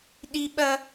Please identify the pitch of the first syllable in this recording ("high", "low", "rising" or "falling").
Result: high